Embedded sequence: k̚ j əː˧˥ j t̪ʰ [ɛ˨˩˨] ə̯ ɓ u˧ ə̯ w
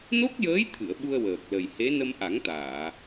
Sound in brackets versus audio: incorrect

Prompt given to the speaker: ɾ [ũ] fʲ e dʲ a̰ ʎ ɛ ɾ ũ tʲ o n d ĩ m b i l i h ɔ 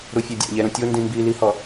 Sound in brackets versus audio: incorrect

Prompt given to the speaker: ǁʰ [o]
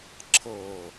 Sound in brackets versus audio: incorrect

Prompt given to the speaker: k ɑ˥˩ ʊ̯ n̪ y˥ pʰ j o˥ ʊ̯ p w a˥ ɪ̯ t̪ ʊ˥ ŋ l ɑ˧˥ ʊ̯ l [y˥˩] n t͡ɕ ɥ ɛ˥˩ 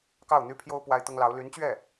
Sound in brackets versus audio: incorrect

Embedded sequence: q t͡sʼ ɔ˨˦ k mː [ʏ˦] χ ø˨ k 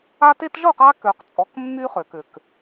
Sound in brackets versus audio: incorrect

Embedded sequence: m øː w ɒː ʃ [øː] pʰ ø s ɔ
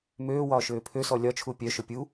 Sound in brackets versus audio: correct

